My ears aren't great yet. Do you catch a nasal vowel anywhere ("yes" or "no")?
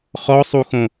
yes